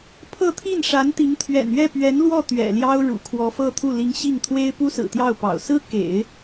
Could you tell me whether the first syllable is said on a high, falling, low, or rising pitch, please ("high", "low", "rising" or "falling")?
falling